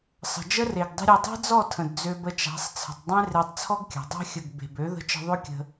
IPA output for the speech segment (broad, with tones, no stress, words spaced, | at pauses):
sˤə̤˨ d͡ʒə˦re˨ɡdˤə̤˦ɾʲe˧ dˤe̤˦d͡zɔ˦˨tʰə̃˨d d͡zø˧bə˧t͡ʃa̤˨˦sˤ t͡sʰə̤˨tˤdˤẽ˦ re˧tˤt͡sʰɔ˦ɡkʲa̤˨ dˤa̤˧xʲə˨ɡ be̤˨b ø˨˦ðə̤˧t͡ʃə̤˧ ðˤø˦kʲə̤˧